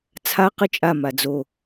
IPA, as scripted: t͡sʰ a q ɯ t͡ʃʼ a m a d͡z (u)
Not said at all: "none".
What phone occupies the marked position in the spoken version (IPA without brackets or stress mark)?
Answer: o